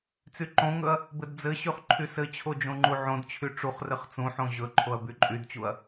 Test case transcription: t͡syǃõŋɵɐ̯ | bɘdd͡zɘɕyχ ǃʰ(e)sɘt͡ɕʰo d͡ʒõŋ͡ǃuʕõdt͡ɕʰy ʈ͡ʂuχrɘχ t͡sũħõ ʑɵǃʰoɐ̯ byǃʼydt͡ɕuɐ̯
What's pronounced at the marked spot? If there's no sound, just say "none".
y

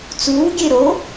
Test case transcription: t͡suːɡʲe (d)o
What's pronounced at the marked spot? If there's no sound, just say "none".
ɾ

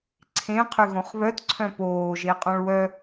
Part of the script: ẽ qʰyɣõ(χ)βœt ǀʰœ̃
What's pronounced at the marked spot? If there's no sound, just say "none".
χ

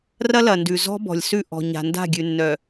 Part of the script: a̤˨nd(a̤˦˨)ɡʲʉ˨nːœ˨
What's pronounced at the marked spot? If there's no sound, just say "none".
a̤˦˨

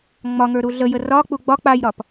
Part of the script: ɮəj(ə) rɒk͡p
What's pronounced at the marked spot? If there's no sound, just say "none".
ə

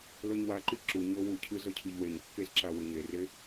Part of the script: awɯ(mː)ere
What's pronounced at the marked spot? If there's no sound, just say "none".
ɲ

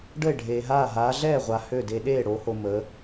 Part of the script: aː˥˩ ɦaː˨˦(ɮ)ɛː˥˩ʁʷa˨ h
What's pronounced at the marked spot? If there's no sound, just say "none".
ɮ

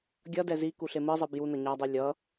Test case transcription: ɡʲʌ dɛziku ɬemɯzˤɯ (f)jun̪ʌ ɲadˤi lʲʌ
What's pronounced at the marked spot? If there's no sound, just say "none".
b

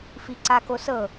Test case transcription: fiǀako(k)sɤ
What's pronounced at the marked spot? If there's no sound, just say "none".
none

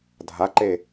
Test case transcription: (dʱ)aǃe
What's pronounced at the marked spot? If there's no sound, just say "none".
dʱ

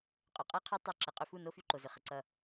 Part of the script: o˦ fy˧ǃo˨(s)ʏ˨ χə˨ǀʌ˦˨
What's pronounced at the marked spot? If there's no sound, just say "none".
z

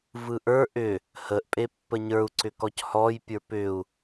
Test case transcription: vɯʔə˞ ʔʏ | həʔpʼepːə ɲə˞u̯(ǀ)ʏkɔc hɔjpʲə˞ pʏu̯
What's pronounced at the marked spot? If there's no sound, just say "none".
ǀ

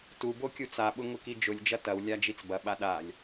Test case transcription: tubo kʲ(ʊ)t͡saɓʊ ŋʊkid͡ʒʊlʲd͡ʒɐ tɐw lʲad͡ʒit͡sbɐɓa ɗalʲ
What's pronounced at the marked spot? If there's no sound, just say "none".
u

